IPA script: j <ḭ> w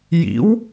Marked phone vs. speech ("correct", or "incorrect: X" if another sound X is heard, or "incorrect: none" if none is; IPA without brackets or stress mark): correct